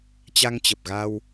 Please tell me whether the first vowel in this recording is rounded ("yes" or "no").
no